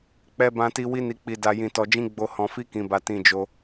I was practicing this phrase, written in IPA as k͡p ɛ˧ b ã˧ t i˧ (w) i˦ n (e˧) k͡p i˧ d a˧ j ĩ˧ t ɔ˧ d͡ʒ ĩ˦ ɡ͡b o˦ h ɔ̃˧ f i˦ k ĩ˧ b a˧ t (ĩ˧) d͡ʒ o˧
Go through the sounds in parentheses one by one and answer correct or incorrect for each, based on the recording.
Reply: correct, incorrect, correct

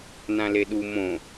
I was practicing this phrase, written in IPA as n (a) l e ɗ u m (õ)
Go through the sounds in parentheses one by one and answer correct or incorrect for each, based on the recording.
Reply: incorrect, correct

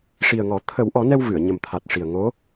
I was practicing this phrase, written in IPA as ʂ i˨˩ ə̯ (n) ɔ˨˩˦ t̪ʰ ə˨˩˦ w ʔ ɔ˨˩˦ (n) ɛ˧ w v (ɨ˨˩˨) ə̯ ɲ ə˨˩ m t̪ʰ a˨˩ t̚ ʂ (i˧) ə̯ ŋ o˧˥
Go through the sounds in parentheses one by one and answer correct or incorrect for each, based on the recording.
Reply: incorrect, correct, correct, incorrect

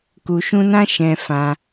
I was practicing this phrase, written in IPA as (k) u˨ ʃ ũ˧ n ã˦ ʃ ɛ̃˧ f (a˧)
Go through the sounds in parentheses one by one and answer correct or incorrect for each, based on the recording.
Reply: correct, incorrect

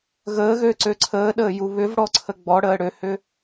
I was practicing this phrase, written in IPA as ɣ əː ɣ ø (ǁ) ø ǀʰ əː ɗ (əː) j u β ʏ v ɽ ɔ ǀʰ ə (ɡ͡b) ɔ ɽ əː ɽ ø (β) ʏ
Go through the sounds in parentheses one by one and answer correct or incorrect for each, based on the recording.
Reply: incorrect, correct, correct, incorrect

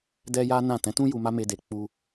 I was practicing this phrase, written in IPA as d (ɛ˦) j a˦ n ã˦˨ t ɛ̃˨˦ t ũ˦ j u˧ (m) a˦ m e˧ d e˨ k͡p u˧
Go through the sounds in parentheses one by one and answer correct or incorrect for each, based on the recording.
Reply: correct, correct

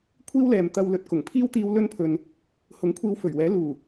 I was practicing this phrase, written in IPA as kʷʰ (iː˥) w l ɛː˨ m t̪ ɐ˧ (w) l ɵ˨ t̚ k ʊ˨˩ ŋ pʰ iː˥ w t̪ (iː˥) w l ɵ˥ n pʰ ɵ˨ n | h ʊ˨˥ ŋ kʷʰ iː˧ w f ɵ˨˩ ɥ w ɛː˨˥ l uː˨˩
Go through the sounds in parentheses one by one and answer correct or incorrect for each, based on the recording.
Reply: correct, correct, incorrect

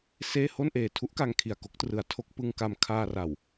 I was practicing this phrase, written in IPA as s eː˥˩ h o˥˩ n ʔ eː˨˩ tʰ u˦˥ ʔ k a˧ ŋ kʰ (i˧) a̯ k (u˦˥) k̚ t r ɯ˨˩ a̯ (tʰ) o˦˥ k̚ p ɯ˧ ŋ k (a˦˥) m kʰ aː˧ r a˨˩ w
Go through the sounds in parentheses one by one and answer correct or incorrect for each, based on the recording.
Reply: incorrect, incorrect, correct, incorrect

